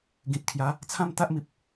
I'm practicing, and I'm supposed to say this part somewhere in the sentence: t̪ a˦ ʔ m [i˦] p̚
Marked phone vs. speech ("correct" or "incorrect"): incorrect